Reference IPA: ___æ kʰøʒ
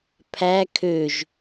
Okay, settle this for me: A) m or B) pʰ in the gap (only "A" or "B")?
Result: B